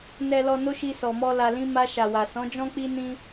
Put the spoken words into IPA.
n ɛ˨ l ɔ˨ n o˧ ʃ i˧ s ɔ˨ m ɔ˧ l a˨ l ĩ˧ m a˧ ʃ a˨ w a˨ s ɔ̃˨˦ d͡ʒ ɔ̃˦ k͡p i˦ n ĩ˦

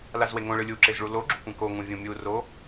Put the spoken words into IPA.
l a z w e ŋ õ ɭ ɯ lʲ u ǁ e z ɭ u l o ɡ͡ǁ u kʷ ɛ̃ k o ŋ ũ vʲ ũ mʲ u r o

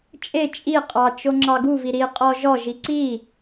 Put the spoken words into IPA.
t͡ʃʼ e t͡ʃʼ i qʼ ɑ t͡ʃ o ŋ͡ǁ ɑ ɡ u v i ɾ i qʼ ɔ ʒ ɔ ʒ i ǀ i

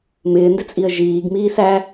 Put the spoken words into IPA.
m ɪː n d ɪ t͡sʼ i ə̯ ʒ iː ɡ m iː s æ

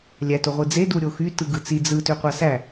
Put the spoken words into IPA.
lʲ æ t o ʁʷ ɯ d͡z e d u ɾʲ o x y t ɯ ɡ ɯ t͡s i d͡z ɯ t ø qʷ ɑ s æ

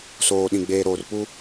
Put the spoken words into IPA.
s oː˨ ɗ ĩ˨ ɡ͡b eː˨ ɾ oː˨ r p u˦

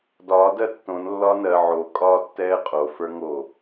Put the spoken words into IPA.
d ɒː d ɜ tː õ n lː ɒː n ɜ ʕ o kʼ ɒː tː ɛː qʼ o f ə˞ ŋ o

